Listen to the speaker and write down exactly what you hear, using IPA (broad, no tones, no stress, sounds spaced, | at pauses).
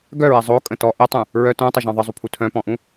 ɡ œ ɹ ɛ zˤ o kʼ ə̃ t ɔ ʔ ɛ tˤ ũ | ɹ œ t œ̃ tˤ ə ʒ ɔ̃ ðˤ ə zˤ u pʰ u tʰ œ̃ p ɔ̃ ʔ ũ